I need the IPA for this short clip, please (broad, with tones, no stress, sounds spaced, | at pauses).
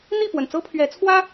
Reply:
n̪ i˥˨ p w ə˩ n t͡s ɤ˦ pʰ ɥ ɛ˨˦ t͡sʰ w ä˦